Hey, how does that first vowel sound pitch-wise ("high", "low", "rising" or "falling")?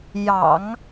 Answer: low